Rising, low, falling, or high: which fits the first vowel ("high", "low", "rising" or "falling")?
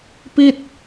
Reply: falling